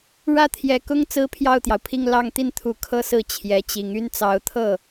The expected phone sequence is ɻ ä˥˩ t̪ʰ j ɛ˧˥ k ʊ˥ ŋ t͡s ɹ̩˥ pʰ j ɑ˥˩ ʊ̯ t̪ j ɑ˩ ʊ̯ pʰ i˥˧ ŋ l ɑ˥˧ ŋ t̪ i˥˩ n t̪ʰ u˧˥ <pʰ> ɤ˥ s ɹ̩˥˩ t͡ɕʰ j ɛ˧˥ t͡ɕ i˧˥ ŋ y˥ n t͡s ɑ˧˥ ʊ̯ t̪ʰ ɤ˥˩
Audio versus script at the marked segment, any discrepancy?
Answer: yes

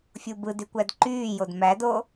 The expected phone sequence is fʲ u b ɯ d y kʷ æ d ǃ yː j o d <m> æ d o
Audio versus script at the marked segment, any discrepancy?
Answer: no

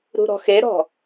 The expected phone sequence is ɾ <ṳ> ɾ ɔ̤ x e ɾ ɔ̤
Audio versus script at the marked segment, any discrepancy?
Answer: no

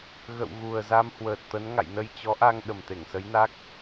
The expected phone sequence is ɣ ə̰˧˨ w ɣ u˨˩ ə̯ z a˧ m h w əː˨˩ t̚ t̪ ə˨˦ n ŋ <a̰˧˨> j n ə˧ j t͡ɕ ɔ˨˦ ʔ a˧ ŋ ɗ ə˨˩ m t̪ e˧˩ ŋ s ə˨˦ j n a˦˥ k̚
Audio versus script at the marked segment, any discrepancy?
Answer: no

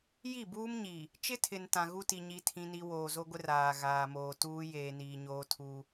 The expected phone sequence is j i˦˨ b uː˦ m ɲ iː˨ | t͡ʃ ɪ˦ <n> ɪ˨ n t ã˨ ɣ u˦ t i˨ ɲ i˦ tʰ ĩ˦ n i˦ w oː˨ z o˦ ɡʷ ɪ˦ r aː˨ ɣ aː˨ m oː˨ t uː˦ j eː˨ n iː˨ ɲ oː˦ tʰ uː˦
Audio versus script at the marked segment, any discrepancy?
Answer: yes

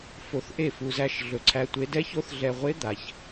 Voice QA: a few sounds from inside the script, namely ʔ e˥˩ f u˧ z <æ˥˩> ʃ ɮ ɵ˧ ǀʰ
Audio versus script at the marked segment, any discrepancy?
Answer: no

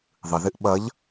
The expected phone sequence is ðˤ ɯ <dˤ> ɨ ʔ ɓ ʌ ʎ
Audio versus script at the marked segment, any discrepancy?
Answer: yes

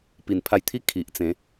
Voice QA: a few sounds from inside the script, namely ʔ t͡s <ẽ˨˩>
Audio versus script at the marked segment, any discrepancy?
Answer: yes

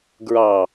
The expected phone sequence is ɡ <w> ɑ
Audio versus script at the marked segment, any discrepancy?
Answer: yes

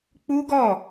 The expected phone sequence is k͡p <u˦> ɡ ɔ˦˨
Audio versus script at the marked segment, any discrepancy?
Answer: no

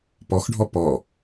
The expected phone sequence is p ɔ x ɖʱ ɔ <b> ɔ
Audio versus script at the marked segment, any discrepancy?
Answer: yes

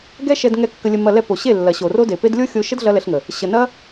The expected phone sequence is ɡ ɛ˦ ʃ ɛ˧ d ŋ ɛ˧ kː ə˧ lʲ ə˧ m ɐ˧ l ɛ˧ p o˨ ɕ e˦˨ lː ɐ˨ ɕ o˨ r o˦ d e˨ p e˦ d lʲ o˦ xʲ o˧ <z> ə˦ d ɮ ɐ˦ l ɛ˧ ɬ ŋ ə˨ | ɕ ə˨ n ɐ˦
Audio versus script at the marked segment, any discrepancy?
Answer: yes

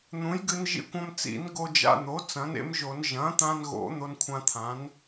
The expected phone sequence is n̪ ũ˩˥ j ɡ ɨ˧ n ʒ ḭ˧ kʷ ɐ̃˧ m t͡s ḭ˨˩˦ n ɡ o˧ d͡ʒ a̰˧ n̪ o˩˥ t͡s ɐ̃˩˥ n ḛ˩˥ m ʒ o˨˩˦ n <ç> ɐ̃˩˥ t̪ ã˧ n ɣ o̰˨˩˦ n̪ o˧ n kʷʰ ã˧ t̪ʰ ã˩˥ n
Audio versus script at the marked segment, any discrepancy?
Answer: yes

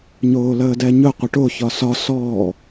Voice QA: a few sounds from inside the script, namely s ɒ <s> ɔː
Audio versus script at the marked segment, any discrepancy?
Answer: no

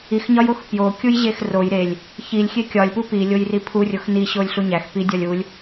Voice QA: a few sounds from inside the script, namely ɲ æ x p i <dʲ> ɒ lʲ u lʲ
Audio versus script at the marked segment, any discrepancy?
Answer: no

